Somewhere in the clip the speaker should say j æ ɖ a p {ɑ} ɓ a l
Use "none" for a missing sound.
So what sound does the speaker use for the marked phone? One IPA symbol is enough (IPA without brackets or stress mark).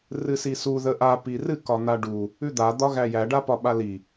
ɒ